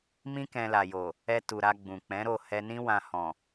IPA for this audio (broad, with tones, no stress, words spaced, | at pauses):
mĩ˦kɛ̃˧la˨jo˨ | ɛ˧ tu˨ɾa˧ ɡ͡bũ˨k͡pɛ̃˨˦ɾo˦˨ hɛ˧nĩ˦ wã˧hɔ̃˨